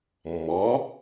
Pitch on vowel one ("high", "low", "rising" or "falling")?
rising